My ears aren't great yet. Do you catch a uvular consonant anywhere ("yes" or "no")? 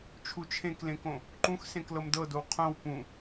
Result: yes